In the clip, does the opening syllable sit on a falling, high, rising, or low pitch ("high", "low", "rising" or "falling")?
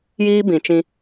high